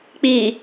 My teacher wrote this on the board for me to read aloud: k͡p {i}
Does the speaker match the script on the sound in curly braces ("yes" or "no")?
yes